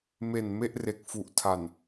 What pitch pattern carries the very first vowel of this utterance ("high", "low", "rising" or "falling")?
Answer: low